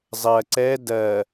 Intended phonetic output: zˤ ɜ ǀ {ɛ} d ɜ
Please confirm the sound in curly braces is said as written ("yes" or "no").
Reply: yes